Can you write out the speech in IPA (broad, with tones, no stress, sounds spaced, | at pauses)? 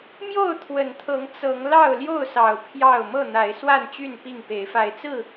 m j o˥˨ ʊ̯ t̪ʰ w ə˨˩ n t̪ʰ ɤ˨˦ ŋ t͡s ɤ˨˦ ŋ l ɑ˥˨ ʊ̯ l j o˥˨ ʊ̯ s ɑ˨˩ ʊ̯ pʰ j ɑ˥˨ ʊ̯ m ɤ˥˨ n̪ a˨˦ ɪ̯ s w a˥˨ n t͡ɕ y˥˨ n p i˥˨ ŋ p e˨˦ ɪ̯ f a˨˦ ɪ̯ t͡s ɹ̩˥˨